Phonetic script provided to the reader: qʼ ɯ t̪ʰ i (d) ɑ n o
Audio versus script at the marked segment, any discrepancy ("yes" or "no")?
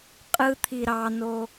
yes